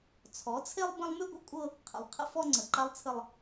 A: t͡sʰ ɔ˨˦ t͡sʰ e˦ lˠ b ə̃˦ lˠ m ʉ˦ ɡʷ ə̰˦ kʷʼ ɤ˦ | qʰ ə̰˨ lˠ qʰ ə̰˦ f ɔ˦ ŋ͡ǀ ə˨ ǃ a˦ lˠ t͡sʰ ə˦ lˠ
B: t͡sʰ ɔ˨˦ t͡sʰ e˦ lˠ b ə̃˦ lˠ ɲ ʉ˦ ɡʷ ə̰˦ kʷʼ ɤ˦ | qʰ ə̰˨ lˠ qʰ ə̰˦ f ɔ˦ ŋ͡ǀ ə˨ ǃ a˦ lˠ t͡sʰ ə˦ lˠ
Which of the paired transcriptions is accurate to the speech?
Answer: A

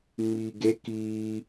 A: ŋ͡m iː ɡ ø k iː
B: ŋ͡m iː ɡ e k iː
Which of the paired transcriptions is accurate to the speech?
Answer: B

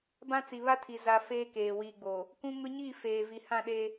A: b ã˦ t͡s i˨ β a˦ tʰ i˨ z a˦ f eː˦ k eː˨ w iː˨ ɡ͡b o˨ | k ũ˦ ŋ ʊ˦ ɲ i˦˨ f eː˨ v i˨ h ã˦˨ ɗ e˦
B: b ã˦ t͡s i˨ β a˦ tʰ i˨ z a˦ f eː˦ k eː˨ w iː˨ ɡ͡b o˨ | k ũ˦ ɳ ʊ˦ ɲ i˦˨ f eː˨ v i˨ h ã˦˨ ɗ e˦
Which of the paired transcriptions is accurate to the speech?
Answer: A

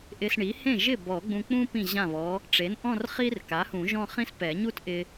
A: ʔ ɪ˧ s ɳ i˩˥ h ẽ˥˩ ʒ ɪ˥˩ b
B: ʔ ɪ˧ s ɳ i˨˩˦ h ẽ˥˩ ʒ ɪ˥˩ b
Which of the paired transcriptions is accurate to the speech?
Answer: A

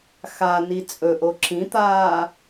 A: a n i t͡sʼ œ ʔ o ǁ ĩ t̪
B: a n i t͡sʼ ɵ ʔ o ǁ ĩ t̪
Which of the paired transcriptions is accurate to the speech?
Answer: B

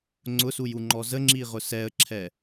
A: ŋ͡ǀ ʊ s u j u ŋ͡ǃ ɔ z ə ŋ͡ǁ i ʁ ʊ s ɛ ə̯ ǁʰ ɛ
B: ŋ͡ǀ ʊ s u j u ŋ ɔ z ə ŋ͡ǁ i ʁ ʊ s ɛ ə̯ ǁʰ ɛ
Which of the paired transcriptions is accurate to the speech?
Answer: A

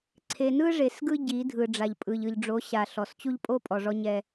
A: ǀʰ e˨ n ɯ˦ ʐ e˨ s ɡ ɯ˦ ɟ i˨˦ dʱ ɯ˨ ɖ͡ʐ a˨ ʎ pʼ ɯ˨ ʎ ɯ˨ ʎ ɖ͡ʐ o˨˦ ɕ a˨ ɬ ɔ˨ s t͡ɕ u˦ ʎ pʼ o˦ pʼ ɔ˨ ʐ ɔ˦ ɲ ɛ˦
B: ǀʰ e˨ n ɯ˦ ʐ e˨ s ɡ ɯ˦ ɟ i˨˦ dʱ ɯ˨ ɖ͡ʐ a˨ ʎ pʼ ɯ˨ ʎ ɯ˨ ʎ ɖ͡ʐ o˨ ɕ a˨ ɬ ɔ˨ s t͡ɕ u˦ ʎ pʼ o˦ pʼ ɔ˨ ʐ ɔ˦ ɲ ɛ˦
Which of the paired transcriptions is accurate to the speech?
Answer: A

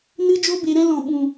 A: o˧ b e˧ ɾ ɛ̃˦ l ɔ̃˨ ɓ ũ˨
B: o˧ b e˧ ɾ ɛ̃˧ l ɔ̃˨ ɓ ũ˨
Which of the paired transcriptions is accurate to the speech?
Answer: A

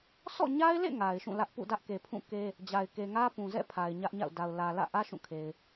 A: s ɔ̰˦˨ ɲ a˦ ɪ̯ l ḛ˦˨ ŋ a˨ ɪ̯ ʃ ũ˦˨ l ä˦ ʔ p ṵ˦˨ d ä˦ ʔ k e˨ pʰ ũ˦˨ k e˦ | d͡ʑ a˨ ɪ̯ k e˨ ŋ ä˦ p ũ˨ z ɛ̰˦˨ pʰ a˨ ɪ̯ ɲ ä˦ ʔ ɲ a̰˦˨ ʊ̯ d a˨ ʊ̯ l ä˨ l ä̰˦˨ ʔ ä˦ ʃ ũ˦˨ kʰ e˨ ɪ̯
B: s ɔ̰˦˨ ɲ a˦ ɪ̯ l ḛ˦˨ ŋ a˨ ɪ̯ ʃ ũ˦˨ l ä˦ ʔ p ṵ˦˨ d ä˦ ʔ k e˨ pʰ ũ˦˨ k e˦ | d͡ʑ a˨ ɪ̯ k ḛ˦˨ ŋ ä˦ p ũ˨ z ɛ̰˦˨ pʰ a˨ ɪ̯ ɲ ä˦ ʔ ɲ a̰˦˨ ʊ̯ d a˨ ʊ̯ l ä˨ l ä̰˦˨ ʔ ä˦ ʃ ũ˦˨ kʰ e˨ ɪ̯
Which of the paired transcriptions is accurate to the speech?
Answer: A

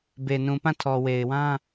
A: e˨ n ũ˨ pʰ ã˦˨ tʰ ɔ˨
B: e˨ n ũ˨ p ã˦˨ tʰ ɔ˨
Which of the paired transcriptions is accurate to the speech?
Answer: B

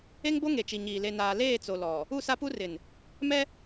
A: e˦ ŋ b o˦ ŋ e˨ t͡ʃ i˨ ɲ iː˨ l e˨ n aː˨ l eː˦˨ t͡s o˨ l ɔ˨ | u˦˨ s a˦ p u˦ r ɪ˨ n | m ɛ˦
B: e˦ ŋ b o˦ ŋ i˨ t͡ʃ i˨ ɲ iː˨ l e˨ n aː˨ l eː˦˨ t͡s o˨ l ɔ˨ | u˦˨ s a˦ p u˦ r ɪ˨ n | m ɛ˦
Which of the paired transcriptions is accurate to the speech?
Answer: A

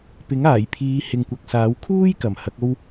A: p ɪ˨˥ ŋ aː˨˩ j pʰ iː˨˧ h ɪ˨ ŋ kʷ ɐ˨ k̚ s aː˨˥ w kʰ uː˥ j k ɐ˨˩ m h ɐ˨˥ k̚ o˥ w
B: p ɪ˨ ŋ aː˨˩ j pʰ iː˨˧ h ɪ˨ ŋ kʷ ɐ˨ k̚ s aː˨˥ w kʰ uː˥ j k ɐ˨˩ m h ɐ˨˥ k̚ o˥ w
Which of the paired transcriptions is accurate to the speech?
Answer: A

